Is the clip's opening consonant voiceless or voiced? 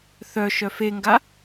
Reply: voiceless